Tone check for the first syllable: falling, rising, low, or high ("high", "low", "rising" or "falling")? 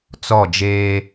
falling